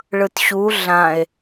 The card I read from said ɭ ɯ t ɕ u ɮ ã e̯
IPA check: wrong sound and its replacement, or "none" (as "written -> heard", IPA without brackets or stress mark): none